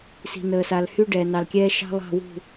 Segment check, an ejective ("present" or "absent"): absent